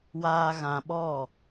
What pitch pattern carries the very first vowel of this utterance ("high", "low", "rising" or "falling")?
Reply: high